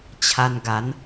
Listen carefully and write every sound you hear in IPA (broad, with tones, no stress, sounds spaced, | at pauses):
t͡ɕʰ a˧ n ɡ a˨˦ n